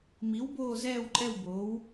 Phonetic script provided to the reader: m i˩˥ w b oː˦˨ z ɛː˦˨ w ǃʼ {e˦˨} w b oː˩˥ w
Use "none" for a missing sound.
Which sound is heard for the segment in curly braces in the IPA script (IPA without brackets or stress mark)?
ɛ˦˨